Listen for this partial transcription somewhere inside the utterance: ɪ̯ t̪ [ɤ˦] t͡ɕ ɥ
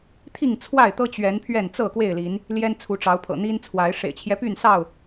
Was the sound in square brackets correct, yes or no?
yes